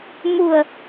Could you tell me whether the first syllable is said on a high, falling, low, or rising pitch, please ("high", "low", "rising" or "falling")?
low